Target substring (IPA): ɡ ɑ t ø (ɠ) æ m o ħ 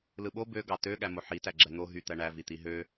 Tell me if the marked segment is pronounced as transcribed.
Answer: yes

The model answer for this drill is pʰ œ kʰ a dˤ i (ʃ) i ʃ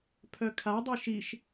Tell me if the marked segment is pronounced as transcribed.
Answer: yes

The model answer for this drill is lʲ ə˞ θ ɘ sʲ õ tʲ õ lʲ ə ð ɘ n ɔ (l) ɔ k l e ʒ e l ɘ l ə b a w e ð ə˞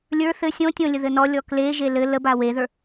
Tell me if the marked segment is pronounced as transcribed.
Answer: no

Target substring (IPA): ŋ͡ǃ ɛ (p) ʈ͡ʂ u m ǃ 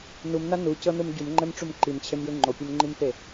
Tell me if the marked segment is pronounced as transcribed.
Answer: no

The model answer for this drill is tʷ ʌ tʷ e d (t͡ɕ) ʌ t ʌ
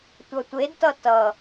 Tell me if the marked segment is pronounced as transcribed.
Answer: no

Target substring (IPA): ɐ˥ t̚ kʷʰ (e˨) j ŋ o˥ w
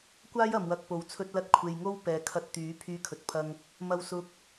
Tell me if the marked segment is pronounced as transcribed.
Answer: yes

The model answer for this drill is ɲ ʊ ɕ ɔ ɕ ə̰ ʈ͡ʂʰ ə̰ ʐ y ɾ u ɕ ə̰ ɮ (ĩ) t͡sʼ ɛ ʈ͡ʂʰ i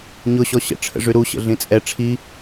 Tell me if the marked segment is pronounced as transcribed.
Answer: yes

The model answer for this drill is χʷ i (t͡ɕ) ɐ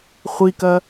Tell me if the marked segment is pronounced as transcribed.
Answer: no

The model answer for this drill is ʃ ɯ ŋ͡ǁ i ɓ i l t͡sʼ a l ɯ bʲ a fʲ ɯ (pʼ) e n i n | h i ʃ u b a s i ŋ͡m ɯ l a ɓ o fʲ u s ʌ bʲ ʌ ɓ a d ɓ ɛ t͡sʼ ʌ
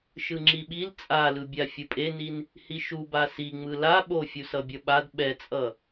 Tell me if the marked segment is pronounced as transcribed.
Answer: yes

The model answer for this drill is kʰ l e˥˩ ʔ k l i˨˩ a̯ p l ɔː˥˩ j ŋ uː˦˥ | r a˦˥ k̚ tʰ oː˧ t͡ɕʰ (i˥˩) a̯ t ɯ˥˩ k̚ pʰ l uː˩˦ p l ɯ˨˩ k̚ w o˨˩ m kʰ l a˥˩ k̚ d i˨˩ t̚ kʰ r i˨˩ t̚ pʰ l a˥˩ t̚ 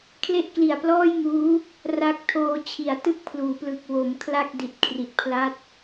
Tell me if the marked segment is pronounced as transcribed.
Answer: no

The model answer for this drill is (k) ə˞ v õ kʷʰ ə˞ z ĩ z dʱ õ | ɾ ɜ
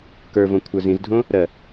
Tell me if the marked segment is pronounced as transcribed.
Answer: yes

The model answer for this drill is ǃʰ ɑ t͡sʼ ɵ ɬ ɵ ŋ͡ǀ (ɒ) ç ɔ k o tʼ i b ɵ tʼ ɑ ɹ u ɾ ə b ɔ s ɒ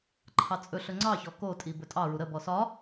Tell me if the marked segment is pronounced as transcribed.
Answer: no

